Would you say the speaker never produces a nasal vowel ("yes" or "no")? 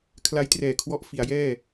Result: yes